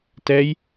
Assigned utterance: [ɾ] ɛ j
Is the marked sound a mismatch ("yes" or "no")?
yes